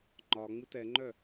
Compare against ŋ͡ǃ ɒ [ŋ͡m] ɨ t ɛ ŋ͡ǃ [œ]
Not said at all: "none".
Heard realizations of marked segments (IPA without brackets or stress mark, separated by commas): ŋ͡m, œ